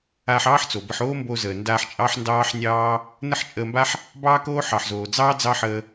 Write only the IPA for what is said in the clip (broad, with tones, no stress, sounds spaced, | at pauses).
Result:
aː˧ ħ ɑː˥ ħ t͡s o˩ b ə˧ ħ oː˥ m b o˧ z əː˩ n d aː˧ ħ t͡ʃʼ ɑ˥ ħ n d ɑː˥ ħ nʲ ɑː˥ | n ə˥ ħ t͡ʃʼ əː˧ m b a˥ ħ | b ɑː˥ k oː˥ ħ ɑ˩ ħ z oː˩ d͡z ɑː˥ d͡z ɑ˥ ħ əː˧